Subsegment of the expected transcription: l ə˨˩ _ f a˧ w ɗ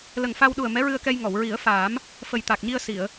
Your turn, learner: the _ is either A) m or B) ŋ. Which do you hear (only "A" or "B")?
B